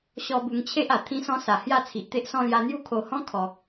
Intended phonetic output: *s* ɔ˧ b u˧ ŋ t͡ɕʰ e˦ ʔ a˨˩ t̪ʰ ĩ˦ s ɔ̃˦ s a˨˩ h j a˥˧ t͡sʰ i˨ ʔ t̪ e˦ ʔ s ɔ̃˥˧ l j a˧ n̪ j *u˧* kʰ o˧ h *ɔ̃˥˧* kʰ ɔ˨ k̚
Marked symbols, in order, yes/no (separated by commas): no, no, no